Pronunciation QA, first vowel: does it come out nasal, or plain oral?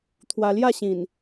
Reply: oral